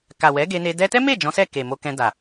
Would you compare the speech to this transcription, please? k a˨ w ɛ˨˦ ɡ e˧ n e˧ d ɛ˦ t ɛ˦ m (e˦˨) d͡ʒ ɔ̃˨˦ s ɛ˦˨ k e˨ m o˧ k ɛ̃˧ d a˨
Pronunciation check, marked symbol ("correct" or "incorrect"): correct